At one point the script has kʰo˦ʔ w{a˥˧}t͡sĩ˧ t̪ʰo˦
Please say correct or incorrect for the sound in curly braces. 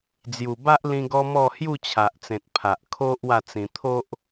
correct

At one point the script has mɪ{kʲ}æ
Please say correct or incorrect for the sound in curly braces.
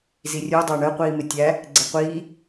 incorrect: tʲ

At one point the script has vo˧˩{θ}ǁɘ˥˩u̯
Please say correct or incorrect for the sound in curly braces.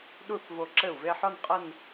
incorrect: none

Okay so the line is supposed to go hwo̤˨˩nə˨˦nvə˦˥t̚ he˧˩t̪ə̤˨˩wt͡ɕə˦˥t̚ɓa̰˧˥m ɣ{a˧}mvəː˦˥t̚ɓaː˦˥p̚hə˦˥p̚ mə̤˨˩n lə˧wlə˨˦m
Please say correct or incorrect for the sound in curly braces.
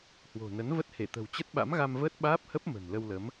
correct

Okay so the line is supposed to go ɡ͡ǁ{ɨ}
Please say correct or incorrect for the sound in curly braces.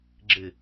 correct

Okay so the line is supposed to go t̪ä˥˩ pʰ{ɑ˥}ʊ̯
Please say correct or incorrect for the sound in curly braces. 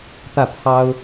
correct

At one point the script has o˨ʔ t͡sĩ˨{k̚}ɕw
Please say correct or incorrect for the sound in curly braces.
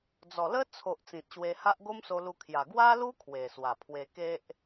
incorrect: t̚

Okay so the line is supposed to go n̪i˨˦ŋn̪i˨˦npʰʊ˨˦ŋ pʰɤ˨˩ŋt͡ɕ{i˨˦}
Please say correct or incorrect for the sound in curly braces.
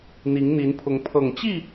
incorrect: i˥˨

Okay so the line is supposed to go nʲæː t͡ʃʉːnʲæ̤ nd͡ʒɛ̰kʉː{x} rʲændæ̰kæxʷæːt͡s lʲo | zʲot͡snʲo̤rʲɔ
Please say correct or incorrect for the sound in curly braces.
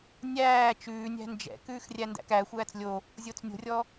correct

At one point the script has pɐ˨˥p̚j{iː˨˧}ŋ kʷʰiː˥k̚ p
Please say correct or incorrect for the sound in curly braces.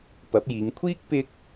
correct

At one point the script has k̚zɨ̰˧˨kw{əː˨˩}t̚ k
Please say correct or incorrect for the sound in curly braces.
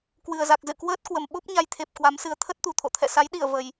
incorrect: əː˦˥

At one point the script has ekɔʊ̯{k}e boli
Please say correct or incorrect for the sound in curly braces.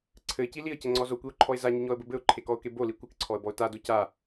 correct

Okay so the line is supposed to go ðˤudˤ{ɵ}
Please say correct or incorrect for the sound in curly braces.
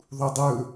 correct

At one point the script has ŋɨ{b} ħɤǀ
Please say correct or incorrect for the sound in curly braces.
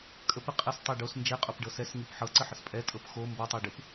incorrect: p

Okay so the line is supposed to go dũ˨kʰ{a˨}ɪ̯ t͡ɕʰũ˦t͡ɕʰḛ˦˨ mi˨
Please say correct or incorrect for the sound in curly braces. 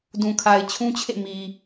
correct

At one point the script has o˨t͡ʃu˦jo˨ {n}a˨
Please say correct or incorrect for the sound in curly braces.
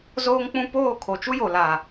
incorrect: l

